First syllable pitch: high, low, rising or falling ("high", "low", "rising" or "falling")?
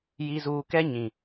low